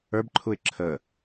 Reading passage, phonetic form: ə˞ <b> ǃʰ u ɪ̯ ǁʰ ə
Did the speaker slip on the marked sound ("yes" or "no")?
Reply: no